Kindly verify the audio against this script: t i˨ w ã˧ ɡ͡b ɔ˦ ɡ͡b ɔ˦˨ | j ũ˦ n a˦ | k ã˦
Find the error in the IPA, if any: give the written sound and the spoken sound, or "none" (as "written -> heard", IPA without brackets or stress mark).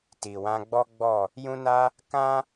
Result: none